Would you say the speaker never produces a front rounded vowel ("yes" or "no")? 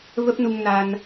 yes